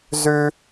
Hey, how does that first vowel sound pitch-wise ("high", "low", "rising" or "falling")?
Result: high